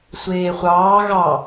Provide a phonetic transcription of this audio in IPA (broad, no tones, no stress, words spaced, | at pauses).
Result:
sʷeːχʷɑː ɣɑ